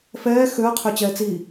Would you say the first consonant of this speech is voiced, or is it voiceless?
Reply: voiceless